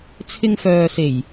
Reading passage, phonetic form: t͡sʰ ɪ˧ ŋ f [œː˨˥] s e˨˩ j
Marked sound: incorrect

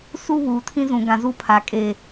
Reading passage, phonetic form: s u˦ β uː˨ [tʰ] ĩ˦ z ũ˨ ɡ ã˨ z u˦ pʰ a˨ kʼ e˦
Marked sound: correct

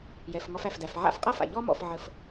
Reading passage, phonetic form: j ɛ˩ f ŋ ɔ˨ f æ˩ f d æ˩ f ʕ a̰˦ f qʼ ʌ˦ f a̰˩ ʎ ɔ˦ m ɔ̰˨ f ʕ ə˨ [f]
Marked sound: correct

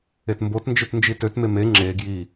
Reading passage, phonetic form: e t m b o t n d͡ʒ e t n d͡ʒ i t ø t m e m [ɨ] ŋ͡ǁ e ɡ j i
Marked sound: incorrect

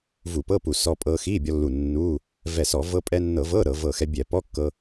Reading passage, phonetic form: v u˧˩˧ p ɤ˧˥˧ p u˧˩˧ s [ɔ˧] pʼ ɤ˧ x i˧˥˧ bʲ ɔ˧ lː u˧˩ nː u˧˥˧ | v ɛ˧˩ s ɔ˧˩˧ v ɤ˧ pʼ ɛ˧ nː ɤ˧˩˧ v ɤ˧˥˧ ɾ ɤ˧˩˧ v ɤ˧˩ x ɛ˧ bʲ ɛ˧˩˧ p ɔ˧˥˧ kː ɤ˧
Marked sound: correct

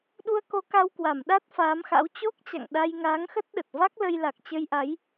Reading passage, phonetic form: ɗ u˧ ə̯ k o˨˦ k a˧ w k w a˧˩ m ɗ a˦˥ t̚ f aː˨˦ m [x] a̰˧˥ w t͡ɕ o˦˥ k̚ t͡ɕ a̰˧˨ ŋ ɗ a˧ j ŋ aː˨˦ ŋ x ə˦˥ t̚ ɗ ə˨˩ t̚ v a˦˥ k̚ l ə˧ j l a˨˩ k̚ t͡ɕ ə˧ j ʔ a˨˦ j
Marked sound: correct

